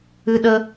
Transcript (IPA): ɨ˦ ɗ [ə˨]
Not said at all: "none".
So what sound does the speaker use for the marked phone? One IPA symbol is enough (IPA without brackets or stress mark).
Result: ə˦